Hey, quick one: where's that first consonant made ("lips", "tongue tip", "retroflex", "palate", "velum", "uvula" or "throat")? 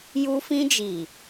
palate